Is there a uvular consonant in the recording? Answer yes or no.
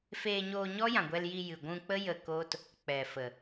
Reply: no